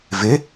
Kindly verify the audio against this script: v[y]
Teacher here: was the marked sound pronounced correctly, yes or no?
no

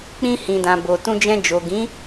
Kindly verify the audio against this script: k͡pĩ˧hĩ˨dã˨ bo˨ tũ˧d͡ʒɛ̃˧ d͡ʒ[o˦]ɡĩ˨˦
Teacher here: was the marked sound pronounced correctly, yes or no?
no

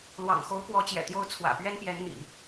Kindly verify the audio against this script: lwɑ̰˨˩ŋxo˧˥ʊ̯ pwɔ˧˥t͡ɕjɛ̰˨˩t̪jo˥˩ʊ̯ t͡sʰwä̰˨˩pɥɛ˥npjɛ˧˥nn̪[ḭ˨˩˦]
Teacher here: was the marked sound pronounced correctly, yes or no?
yes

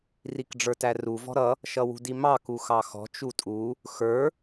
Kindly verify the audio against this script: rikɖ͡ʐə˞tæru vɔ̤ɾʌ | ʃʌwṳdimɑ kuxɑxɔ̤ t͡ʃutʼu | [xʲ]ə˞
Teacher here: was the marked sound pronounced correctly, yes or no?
no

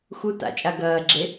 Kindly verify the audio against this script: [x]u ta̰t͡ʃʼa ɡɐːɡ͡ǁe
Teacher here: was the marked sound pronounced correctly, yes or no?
yes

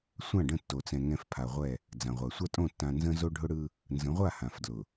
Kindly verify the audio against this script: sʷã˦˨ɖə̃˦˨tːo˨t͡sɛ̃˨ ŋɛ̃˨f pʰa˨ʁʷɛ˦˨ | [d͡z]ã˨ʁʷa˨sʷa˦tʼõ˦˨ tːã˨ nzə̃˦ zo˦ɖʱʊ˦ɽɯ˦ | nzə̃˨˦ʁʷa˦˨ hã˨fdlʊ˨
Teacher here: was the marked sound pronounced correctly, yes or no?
yes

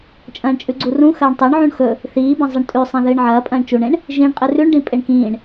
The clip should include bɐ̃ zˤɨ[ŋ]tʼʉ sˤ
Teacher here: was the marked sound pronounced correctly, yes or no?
no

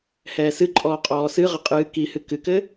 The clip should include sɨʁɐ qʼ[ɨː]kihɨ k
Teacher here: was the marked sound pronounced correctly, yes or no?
yes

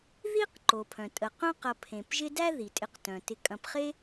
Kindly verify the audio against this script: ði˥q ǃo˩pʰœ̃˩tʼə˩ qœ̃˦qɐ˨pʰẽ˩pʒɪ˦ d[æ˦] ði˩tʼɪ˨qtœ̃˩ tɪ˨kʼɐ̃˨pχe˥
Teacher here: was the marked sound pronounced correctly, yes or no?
yes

